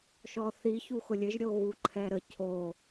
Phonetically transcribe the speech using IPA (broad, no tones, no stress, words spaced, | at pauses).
ʃɔθi çuxʊlʲɘʒ ɾʲoɣuǃʰɛɾə cʰo